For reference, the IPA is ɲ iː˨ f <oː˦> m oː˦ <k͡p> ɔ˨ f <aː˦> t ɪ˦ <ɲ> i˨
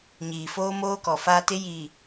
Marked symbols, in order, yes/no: yes, no, yes, no

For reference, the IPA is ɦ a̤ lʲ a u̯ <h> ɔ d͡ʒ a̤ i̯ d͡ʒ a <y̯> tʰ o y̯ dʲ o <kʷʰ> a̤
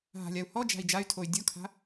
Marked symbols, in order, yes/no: yes, yes, no

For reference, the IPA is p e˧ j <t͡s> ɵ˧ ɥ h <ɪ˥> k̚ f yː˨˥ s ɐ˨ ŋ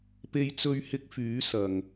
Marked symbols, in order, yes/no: yes, no

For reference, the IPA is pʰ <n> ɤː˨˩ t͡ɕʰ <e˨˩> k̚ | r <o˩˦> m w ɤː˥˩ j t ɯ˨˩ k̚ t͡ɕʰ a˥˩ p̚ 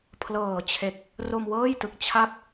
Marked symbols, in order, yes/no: no, yes, no

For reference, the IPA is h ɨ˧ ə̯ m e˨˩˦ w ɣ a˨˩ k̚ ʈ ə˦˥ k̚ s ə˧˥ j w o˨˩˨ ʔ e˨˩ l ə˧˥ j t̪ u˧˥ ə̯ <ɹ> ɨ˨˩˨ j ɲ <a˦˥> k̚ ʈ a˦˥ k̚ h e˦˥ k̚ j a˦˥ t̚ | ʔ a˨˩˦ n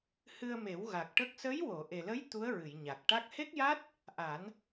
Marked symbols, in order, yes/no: yes, no

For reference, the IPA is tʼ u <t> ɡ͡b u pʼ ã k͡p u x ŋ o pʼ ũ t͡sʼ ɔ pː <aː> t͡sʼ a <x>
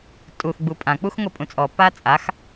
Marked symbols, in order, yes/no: no, yes, yes

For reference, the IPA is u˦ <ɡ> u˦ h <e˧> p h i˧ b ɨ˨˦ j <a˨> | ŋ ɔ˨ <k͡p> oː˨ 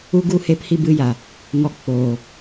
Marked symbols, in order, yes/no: yes, yes, yes, yes

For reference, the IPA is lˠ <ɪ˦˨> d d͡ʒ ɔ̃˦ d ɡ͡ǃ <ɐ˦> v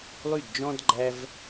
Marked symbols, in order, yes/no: no, no

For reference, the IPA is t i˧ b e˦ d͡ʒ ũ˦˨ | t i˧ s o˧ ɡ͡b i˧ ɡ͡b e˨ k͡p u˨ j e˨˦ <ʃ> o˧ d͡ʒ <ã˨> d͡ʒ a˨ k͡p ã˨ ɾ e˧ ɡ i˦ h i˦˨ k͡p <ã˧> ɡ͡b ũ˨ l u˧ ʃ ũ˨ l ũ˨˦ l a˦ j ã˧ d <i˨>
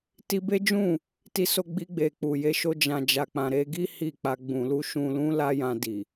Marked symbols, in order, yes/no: yes, yes, no, yes

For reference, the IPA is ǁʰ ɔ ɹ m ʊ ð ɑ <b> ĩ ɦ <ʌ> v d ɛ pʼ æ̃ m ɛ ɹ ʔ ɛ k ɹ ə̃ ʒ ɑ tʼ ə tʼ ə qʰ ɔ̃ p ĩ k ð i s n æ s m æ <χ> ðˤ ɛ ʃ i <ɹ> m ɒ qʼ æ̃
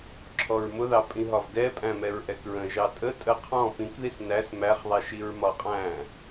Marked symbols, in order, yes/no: no, no, yes, yes

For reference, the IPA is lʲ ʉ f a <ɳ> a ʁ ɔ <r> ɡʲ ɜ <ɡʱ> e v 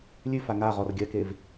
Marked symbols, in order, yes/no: no, yes, no

